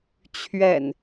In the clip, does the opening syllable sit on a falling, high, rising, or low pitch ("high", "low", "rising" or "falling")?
low